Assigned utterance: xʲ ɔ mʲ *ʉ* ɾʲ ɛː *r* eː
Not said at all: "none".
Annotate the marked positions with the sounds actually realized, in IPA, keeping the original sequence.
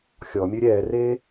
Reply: ʉ, r

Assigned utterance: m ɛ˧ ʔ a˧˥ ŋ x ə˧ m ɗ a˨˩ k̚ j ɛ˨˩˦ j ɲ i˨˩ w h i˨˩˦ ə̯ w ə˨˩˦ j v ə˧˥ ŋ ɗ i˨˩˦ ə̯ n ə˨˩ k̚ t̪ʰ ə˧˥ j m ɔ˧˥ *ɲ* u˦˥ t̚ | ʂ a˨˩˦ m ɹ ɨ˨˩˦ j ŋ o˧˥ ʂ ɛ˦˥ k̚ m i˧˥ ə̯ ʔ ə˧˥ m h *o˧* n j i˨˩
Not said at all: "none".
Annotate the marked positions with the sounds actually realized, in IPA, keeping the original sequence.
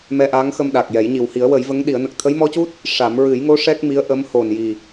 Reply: c, o˨˩

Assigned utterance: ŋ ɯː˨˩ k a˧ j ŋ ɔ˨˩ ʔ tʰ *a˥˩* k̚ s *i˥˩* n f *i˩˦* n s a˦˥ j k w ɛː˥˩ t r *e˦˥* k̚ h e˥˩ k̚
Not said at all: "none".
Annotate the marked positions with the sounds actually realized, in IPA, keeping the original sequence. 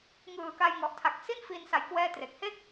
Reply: a˨˩, i˥˩, i˧, e˨˩

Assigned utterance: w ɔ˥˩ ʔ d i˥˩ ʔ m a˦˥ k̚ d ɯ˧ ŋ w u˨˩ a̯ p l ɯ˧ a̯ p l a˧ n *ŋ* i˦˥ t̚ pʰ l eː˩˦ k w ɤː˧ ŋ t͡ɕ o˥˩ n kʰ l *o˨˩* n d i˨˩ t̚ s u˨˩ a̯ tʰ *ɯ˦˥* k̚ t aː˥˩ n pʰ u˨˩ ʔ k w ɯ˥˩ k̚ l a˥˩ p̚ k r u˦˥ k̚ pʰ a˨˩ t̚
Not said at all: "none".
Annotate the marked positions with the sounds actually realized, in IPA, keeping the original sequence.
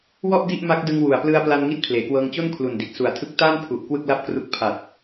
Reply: ŋ, u˨˩, ɯ˦˥

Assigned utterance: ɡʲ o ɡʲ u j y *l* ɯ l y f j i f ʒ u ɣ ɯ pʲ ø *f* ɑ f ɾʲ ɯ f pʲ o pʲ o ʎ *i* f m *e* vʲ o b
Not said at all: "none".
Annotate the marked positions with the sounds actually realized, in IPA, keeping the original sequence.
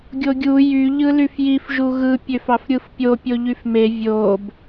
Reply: ʎ, f, y, e

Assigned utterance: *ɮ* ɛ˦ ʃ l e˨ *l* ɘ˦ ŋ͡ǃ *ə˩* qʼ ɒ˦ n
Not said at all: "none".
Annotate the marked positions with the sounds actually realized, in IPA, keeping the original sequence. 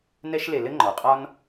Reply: n, l, ɔ˩

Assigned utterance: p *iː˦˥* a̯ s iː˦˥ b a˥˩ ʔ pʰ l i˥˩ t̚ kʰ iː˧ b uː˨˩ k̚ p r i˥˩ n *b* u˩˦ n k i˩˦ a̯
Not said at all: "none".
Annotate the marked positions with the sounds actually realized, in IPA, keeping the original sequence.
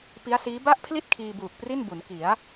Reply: i˦˥, b

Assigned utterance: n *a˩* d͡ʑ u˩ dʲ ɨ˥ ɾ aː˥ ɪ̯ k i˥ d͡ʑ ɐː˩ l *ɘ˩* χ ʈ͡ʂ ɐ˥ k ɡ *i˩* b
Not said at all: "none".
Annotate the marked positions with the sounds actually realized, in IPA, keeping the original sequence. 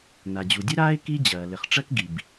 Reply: a˩, ɘ˩, i˩

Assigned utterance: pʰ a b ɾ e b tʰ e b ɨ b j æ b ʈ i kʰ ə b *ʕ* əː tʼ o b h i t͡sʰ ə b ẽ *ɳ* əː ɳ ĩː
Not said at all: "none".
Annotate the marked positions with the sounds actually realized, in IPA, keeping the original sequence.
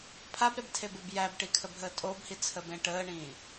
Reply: ɦ, ʈ

